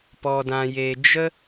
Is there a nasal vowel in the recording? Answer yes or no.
yes